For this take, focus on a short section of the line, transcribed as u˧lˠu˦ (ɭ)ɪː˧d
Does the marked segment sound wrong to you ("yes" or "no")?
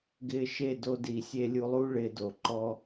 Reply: no